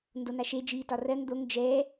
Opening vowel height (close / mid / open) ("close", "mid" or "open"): mid